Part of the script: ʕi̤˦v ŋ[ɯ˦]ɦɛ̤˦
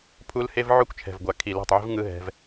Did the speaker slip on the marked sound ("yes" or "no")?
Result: no